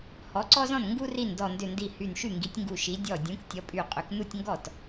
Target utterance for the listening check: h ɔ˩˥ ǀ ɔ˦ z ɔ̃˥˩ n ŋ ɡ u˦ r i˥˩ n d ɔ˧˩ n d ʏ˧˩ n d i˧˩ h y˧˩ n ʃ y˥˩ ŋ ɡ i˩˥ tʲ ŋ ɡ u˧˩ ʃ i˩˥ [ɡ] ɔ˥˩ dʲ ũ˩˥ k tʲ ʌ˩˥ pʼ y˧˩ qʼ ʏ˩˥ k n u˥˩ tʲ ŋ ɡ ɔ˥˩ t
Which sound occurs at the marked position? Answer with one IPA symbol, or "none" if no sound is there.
dʲ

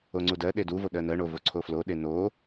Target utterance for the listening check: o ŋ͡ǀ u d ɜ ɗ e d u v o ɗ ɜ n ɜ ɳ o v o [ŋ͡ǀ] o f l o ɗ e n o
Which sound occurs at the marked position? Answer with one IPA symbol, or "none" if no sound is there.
ǀʰ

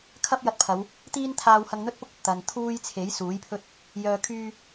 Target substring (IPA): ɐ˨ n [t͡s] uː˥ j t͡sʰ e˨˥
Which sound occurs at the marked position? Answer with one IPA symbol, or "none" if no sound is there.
t̪ʰ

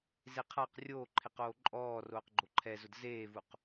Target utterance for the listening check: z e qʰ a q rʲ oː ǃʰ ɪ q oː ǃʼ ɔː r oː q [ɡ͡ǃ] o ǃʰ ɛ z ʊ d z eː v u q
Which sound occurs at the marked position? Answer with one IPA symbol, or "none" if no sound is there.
ɡ͡ǃ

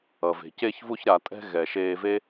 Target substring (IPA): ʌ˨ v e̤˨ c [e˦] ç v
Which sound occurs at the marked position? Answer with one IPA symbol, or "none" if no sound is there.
e˧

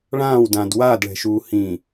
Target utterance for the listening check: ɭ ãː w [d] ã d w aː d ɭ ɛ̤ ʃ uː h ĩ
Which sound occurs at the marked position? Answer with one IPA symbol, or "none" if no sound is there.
d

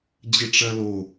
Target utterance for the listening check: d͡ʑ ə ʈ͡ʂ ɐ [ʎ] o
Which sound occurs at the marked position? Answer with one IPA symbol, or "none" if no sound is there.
l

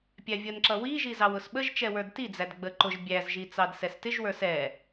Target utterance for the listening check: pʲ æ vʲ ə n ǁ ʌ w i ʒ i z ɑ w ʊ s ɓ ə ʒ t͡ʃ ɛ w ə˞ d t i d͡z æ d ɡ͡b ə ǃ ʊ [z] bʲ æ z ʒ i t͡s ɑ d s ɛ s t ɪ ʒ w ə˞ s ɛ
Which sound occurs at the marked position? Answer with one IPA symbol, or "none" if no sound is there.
ʒ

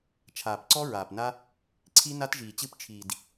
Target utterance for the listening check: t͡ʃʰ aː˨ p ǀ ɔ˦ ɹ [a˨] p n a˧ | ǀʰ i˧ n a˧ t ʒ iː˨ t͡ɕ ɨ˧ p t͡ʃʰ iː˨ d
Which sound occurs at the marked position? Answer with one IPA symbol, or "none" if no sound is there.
aː˨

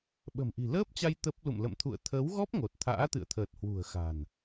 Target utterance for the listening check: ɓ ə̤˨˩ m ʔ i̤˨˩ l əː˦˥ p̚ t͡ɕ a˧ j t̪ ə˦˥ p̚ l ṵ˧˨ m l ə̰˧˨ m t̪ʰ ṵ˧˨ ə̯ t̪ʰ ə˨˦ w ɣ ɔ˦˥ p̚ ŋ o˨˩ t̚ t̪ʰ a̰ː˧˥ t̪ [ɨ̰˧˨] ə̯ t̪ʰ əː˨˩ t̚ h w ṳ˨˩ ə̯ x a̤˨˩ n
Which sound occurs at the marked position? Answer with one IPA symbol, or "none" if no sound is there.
ɨ̰˧˨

